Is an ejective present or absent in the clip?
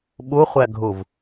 absent